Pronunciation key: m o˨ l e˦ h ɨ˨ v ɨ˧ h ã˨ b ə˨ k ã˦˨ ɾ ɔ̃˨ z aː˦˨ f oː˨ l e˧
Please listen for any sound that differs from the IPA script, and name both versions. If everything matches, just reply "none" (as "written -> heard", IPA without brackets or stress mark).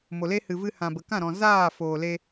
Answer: none